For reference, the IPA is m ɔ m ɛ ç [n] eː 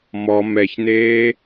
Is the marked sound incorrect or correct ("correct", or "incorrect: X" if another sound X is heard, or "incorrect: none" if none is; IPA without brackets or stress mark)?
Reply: correct